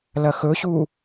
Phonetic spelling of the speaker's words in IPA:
lɐxɵɕu

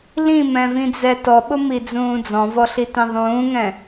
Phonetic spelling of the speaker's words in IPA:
lĩmɛ̃vĩd͡zɛ tɔɓʊmid͡zũː d͡zɔ̃vɔɬitĩ ðˤũːŋɛ̃

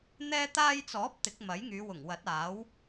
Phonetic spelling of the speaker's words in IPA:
n̪ɛː˥t̪aː˥j t͡sɔː˨˥p̚ t̪ɪ˨˥k̚ mɐ˨˥jŋyː˨˧ wʊ˨˩ŋwɐ˨˥t̚aː˨˥w

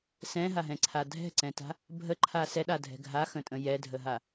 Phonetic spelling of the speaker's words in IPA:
sɛ̃ɦaɦɛ̃ǀʰa dʱɛ̤ǀɛ̃ta̤ | bʱəǃʰa sɛɗadʱɛ̤ ɡʱaxə̃tʼə̃ jɛdʱəɦa

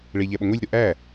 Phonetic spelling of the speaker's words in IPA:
ɭe ʎæɓoŋʷilʲɾo ʔæ

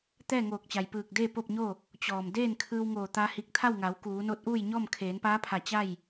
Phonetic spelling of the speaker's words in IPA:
t̪ɛː˥˨ŋoː˧˩k̚t͡ɕa˩jpɯː˧˩k̚ deː˥˨po˥˨p̚ɲo˥˨ | t͡ɕɔː˩mdeː˥˨nkʰɯː˧wŋoː˧˩ t̪a˧hi˧˩k̚t̪ʰa˥˨wŋa˩˧w kuː˩˧no˧˥t̚ʔuː˥˨jɲɔː˥˨m kʰeː˩˧npaː˧˥pʰa˧˩ t͡ɕa˥˨j

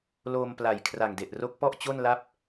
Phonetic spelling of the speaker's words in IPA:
loː˧m pla˨˩jkʰra˨˩ŋde˨˩ʔro˦˥k̚ pɔ˥˩ʔt͡ɕo˥˩nla˥˩p̚

